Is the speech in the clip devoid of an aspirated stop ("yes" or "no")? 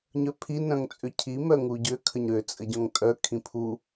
no